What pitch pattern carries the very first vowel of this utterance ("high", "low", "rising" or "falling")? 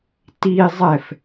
high